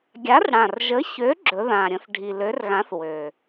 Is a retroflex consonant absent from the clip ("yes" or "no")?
no